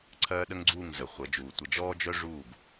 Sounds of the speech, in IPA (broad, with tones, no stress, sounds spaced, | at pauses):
ǀʰ ɜː˦ ɗ ə˦ ŋ ɡ͡ǀ uː˦˨ ŋ z ə˨ χʷ ə˨˦ d͡ʒ uː˨ tʷ ə˨ d͡ʒ ɔː˦ d͡ʒ œ˦ ʐ uː˦˨ ɡ